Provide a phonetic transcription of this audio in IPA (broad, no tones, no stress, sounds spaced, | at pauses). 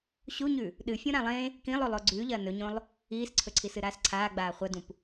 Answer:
ɕ u ɲ ʉ | ɗ ɨ fʲ ũ ɾ ã lˠ ẽ | k ĩ lˠ o lˠ o ɡ͡ǀ ʉ ʎ ɐː n ɵ ɲ õ lˠ | iː s ǀʰ ɵ ǀʰ i s ɨ ɾ aː s ǀʰ aː ɡ͡b aː χʷ ɐ d ũ p